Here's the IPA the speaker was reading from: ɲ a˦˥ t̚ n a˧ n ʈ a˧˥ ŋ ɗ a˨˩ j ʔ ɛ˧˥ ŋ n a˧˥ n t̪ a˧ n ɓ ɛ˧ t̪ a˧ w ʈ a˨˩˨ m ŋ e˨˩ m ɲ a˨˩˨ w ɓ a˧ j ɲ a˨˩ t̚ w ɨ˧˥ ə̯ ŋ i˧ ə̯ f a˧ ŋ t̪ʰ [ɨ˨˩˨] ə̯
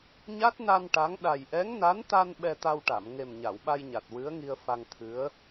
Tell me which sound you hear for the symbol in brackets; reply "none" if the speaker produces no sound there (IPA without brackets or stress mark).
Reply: ɨ˧˥